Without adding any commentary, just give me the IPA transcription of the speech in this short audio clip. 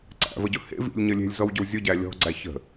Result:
ǀæ̰vəɟʊ hḛ vḭlʲɲə lʲe̤lʲzɔwɟɵw zʲʊɟæ lʲɔ̤ɡ͡ǀæ çə̤

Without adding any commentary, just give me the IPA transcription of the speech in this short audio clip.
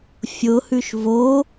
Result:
fʲʊhʉʃ vo

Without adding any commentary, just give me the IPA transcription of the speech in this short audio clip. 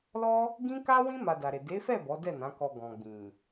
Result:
lɔ˦ | ɡĩ˦ka˦wĩ˦ ma˧da˨ɾe˨ de˨˦fɛ˦˨ bɔ˨˦dɛ˦˨nã˨˦kɔ˧ ɡɔ̃˨ɡ͡bĩ˨

